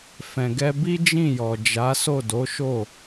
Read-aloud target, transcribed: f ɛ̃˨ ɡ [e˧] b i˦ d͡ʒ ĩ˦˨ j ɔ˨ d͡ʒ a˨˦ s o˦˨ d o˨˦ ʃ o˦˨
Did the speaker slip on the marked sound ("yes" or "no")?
yes